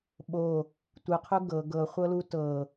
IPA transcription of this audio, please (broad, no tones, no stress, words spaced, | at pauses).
ɓo | tʷɨqʰu ɡɤ ɡɤχʷɤlu tɤ